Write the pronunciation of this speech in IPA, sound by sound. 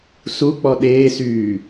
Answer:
s u k͡p ɔ ɗ eː s yː

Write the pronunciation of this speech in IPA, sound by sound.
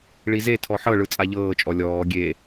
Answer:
ɭ i z e tʰ ɔ ħ ɤ ɭ ɯ t͡sʼ a ʎ ɤː t͡ʃʼ ɔ lʲ ɔː ɡʲ e

